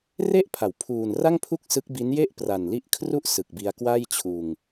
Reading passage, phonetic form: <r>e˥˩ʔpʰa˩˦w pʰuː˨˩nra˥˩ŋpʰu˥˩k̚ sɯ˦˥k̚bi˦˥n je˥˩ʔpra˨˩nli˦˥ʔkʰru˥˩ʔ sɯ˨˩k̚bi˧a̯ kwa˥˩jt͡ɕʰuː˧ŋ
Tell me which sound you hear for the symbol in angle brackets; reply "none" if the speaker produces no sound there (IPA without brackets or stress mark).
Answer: r